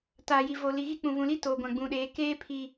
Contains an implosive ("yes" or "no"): yes